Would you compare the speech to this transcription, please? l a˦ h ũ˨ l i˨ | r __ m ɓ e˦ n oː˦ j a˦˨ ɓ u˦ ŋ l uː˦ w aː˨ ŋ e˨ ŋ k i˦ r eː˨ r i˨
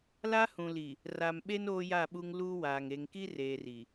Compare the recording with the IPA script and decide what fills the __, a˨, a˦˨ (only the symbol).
a˨